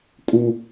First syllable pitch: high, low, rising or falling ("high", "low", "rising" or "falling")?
high